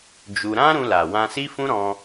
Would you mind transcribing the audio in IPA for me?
d͡ʒ u˧ ɾ ã˦ ɾ ũ˧ l a˨ w ã˧ s i˦ f ũ˦ ɾ ɔ̃˧

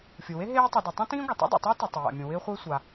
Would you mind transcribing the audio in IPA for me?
fʲ u˩ w e˥ ɦ eː˥ tˤ i˩ d i˩ tˤ ũ˥ t ĩː˥ ɡʷ ɪ˩ tˤ ṵ˥ dˤ ḛ˩ tˤ ɪː˥ t i˩ tˤ ɪ˩ j a̰˩ mʲ ũ˩ w ɪː˥ χʷ ɪː˥ sʷ a˩

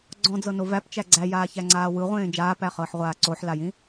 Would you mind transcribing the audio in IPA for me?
ɡ͡ǀ ɔ̃ d͡z ɤ n o v æ p t͡ʃ æ ɡ͡ǀ æ j aː ç æ ŋ͡ǀ aː w ɯ ʁʷ ẽː d͡ʒ aː p æ χ ɤː ħ ʁʷ aː ǀ o ħ l a j ĩ

